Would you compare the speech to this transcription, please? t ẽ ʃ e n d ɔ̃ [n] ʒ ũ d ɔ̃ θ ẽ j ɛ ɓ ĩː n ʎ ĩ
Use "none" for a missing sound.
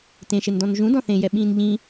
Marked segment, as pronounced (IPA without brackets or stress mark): n